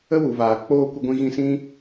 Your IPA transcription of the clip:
ə˦ w u˨ v aː˨ k͡p oː˧ kʷ ə˧ ɡʷ ĩ˧ ɣ ĩ˧ s ĩ˦

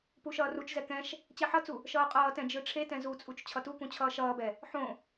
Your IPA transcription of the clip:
p u ʃ ʌː r u t͡ʃ z ɛ k ɛ̃ ʃ | t͡ɕ ɛ ħ ʌ t͡s u | ʃ ʌː qʼ ʌː t ɛ̃ d͡ʒ ɯ ʈ͡ʂʰ e t ɛ̃ z u t͡sʼ u t͡ʃ t͡ɕʰ ʌ t u k ũ t͡ɕʰ ʌː ʃ ʌː b ɛ | ħ õ

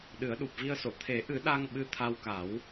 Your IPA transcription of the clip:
ɗ ɨ˨˩˦ ə̯ ɗ u˨˩ p̚ v i˧ ə̯ s o˨˩˨ t̪ʰ e˨˩˦ ʔ ɨ˨˩˦ ɗ a˧ ŋ ɓ ɨ˧ t̪ʰ a˧ w k a˨˩˦ w

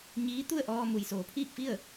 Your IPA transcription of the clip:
ɲ iː˧˥ t̪ u˥˨ ə̯ ʔ ɔː˧ m u˩ j s oː˩˧ pʰ iː˥˨ k̚ f i˥˨ ə̯

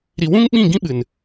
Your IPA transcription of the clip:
ɾ i˨ w ũ˦ ŋ ɓ ĩ˦˨ ɡ ĩ˦ ɓ ɨ˨ n

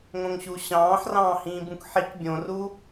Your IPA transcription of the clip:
ŋ õ ŋ ɕ u ɕ ɑ̃ː ħ r ɑ̃ː h ĩː b ũ k ħ i k bʲ õ r u

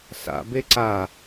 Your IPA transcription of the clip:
s a̰ b e ǀ a

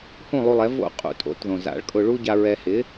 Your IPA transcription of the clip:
h ũ˥˩ lˠ u˧ lˠ ɛ˩˥ v o̰˥˩ qʼ ṵ˩ tʼ o̰˩˥ t ð õ˩ z a̰˩˥ ɭ kʼ ʊ˧ ɭ u˥ ɟ a˧ ɹ ɛ˧ h ɪ˩˥

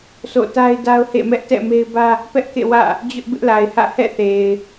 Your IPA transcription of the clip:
s o̰˦˨ t a˦ ɪ̯ d a˦ ʊ̯ h ḛ˦˨ m ɛ˦ ʔ t ɛ̰˦˨ m e˦ ɪ̯ b ä˦ | p ɛ˦ ʔ k ḛ˦˨ w ä̰˦˨ | d͡ʑ ʊ˦ ʔ b ɪ˦ ʔ l a˨ ɪ̯ h ä̰˦˨ h ɛ̰˦˨ θ e˨ ɪ̯

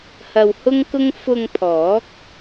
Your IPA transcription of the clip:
h ɐ˧ w h ʊ˥ ŋ k ʊ˥ ŋ f ʊ˧ ŋ pʰ ɔː˨˥ k̚

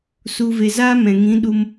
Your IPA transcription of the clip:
s u˧ v e˧ z aː˦ m ɛ̃˨ ŋ ĩ˨˦ ɗ u˧ m

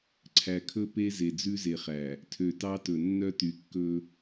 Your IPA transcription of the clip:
ǀʰ æ˨ kʰ ɵ˦ p e˦ z e˨ d͡z ʉ˦ z e˨ χ æ˨ | tʰ ø˨ t ɑ˦ t ɵ˨ nː œ˦ t y˨ kː ɵ˦

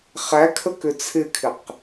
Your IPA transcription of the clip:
χ æ kʰ ə k ʏ t͡sʰ ɪ kʰ ɪ q

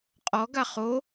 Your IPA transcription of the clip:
qʼ ɔ ɡ a χ o

